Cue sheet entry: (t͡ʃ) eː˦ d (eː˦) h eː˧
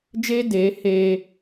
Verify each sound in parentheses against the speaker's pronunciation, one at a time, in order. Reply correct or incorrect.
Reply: incorrect, incorrect

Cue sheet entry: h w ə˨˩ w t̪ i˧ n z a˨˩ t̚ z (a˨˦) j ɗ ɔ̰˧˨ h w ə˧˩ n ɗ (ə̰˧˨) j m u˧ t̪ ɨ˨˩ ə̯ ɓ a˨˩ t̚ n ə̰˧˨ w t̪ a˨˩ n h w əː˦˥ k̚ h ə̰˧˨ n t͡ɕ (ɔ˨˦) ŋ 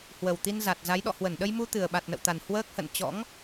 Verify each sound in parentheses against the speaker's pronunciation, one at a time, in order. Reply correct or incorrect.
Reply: correct, incorrect, incorrect

